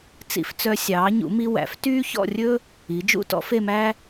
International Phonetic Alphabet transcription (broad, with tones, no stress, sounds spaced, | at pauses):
t͡s ḭ˧ f t͡s œ˧ sʲ ɑː˩˧ ɲ ṵ˩˧ m i˧ w æ̰˩˧ f t yː˥ ç ɔ̰˥˧ rʲ ɵː˥ | i˩˧ d͡ʒ ṵ˥˧ t ɔ̰˥ f e˥˧ m æː˥